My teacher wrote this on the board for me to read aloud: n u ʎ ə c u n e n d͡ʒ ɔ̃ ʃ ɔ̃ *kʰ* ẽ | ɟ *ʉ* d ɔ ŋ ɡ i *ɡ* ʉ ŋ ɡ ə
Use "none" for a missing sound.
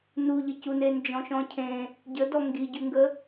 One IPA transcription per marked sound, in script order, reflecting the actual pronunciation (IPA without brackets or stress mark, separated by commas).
cʰ, ə, ɟ